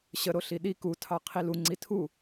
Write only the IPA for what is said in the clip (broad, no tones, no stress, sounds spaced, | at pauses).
ɕ ə ɾ o ɬ i ɗ i k u tʰ ɑ qʰ i l u ŋ͡ǀ i tʰ u